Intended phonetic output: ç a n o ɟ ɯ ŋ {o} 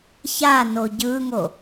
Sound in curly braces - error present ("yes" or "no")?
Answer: no